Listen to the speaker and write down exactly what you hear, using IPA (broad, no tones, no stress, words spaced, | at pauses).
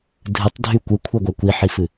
dʱɨtˤdʱy kʷɯkʷʰɛɡʷɛ kʷiħifɨ